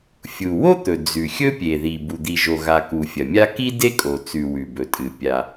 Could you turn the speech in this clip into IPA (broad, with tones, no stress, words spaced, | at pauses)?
fʲu˩ wo˥t̪ɵ˩ d͡zʉ˩xʲɵ˥ pʲe˩ði˩ bu˩d̪i˩ʒo˩ɣa˩ ku˩fʲɐ˩mʲa˥ ki˥de˥kʼo˩ t͡sʉ˩ wʉ˩bɵ˩tʼɨ˩ pʲa˩